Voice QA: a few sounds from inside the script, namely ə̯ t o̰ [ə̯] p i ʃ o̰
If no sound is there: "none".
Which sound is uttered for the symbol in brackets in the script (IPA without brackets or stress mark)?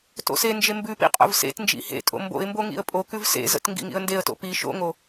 none